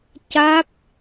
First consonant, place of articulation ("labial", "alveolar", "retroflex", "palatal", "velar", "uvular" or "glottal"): palatal